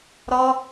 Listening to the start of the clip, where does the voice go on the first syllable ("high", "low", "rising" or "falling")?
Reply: high